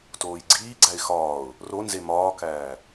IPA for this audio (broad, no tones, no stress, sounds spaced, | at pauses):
t oː j ɡ͡ǀ iː ɡ͡ǀ æ ɪ̯ x ɒː ʊ̯ | r o n z e m ɒː k æː